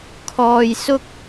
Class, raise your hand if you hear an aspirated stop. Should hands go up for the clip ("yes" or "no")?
yes